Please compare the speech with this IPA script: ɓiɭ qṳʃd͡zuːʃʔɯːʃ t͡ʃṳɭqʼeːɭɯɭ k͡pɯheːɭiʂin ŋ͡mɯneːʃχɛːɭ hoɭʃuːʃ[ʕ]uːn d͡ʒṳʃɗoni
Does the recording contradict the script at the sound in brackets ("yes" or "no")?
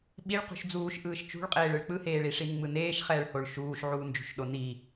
no